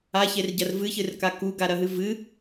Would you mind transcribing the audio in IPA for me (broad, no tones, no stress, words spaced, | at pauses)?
açerɟɐr vɨçɨrka kuɡaɾɐɦɨ vɨ